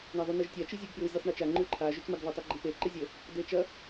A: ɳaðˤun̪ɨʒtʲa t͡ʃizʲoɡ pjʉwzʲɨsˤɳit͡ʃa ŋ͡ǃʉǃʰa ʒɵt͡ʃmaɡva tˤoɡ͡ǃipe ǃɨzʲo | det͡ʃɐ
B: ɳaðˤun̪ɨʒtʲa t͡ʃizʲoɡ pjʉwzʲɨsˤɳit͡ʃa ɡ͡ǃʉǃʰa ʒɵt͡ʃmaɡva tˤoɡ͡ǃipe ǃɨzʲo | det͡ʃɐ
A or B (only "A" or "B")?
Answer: A